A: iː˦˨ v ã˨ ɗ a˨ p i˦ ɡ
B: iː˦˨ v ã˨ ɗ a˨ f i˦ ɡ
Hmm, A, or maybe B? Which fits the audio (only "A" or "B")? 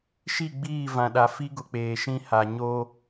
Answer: B